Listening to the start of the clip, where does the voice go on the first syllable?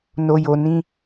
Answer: low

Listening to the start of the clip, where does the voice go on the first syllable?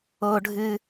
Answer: high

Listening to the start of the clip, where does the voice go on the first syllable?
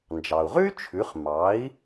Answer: low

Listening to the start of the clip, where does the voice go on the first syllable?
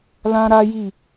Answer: high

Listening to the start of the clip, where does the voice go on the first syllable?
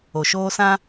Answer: low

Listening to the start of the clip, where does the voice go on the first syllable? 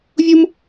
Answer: high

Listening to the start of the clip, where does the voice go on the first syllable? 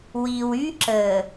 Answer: low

